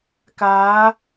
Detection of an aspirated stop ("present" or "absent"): absent